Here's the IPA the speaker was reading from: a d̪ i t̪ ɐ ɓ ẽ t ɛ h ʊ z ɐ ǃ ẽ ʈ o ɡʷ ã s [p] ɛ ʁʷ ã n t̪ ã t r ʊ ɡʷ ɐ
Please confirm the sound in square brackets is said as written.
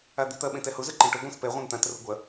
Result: yes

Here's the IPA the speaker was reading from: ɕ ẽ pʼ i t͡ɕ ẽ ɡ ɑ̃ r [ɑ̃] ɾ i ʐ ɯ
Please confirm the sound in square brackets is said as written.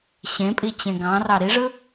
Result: no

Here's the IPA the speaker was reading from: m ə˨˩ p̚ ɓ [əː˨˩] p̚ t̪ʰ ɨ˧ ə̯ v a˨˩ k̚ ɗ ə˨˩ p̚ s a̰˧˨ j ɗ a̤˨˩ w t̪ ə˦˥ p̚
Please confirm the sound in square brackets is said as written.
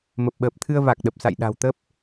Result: yes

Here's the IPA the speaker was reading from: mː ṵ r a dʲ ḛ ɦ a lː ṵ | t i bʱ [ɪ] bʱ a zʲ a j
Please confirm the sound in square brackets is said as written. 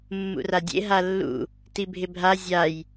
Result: yes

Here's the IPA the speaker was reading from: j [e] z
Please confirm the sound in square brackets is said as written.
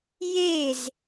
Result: yes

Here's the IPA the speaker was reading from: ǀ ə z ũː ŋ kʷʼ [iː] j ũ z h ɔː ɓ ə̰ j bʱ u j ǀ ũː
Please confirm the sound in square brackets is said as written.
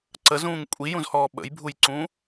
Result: no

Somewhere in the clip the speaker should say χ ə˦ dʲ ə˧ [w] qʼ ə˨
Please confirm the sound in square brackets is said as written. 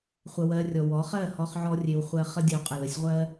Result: yes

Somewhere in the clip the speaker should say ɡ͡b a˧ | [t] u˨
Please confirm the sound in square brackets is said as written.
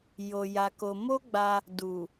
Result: no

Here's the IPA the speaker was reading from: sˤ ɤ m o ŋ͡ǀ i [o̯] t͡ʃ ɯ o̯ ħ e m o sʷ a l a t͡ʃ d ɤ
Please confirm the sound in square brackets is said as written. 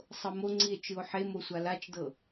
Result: no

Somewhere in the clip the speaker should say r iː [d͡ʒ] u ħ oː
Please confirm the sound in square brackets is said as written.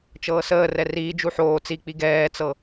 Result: yes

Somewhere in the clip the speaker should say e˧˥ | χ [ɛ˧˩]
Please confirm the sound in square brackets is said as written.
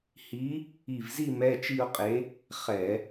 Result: no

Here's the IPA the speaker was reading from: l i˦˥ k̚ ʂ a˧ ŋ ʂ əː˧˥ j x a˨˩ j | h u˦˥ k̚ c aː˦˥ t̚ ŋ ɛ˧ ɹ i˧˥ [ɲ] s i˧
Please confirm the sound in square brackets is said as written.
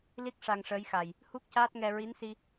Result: no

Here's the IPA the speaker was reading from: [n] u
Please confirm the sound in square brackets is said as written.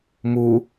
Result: no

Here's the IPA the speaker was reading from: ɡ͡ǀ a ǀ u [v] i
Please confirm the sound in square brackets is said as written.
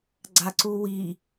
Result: no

